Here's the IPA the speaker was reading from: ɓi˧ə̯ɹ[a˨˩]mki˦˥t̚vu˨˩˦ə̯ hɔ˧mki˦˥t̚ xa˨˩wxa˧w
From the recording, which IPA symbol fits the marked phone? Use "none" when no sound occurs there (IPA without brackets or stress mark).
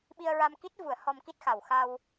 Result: a˧